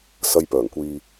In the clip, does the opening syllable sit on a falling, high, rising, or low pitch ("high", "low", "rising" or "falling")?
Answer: low